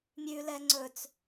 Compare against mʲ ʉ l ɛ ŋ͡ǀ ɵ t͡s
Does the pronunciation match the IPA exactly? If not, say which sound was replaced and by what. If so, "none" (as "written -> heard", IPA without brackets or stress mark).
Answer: none